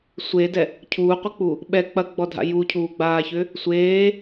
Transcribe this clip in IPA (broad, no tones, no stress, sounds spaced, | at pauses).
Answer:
sʷ e d ɛ | cʰ uː qʷ ə k͡p u | ɓ ɛ k͡p ɐ ɡ͡b ɔ dʱ a̰ j u cʰ uː ɡ͡b aː ç ʏ | sʷ eː